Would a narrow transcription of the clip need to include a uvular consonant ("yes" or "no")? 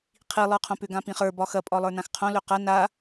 yes